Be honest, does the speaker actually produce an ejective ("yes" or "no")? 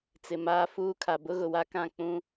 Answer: no